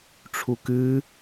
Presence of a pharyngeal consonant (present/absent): absent